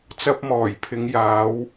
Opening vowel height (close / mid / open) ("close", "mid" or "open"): open